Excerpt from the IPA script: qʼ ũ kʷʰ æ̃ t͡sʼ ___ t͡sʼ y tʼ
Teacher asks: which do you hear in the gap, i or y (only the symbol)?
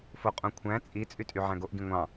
i